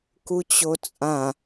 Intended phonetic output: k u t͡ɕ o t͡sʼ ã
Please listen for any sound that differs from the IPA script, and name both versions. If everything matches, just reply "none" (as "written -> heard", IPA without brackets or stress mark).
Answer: none